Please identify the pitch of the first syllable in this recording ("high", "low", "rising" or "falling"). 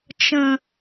low